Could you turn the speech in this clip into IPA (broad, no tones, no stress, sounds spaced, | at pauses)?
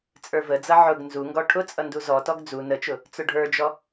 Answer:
t͡sʼ ə˞ v ə d͡z ʌ ʕ ʊ ɡ n z u ŋ ɡ ɔ ʈʰ ʊ t͡sʼ ʌ n d u z ɔ t ɔ ɡ d͡z u n ə t͡ʃ ʊ | t͡s ʊ ɖʱ ə˞ d͡ʒ ɔ